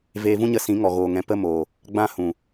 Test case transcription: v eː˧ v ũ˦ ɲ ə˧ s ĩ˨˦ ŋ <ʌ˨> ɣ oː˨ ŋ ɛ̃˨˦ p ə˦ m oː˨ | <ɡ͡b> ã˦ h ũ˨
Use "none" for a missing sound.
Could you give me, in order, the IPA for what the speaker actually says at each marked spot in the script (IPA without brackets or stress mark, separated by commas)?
ɔ˨, ɡ͡b